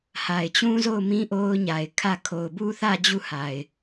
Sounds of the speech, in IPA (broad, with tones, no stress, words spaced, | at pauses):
ha˨ɪ̯t͡ɕũ˦zo˦˨ʊ̯mĩ˦ ʔo˦ʊ̯ɲa˨ɪ̯ kʰä˦˨ kʰo˨ʊ̯bu˦θä˦˨ d͡ʑu˦˨ha˨ɪ̯